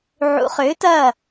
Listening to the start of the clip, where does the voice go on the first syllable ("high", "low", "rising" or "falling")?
rising